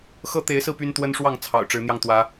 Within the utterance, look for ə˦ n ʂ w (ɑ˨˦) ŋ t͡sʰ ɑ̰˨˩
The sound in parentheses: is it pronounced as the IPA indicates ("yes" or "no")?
no